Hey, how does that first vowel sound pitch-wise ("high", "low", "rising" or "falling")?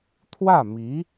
falling